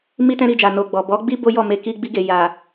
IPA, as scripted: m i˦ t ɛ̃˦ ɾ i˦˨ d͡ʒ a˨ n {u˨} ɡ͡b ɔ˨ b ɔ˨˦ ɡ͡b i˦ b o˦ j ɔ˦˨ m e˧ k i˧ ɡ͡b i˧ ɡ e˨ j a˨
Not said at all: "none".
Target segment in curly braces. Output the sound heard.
o˨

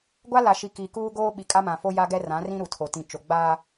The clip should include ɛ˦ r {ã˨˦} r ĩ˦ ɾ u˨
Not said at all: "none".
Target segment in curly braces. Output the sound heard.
ã˨˦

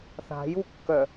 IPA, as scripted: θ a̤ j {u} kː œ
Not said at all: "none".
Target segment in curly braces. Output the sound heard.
u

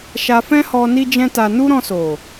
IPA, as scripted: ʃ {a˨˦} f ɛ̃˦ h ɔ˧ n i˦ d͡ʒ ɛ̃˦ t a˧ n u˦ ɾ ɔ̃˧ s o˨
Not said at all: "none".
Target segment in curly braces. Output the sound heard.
a˧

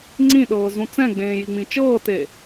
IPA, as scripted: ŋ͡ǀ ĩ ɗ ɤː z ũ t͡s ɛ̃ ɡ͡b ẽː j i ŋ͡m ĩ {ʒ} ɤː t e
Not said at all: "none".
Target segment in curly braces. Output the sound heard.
t͡ʃ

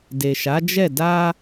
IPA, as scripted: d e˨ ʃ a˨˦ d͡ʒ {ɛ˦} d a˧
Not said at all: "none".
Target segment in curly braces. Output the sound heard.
ɛ˦˨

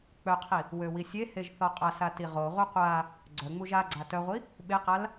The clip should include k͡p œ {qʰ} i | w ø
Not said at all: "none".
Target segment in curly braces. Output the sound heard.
qʰ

